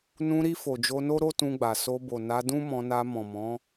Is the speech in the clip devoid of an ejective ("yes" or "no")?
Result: yes